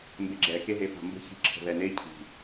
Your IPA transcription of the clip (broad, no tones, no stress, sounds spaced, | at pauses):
m b e ɡ͡ǁ ɛ k e ɦ e f a̤ m b ə̤ ç i̤ ǁʰ ə̤ ð ɛ n e cʰ i̤